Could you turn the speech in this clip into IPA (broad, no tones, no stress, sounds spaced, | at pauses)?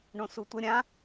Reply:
ɳ õ s u tʷ ə ɾʲ ã